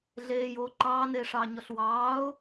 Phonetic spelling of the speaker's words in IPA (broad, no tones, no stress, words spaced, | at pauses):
ɮeːjoː ǃɑːneːʂɑːɲɔɬ wɑːʊ̯